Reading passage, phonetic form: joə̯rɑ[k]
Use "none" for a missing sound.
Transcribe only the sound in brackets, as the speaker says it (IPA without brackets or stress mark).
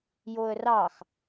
x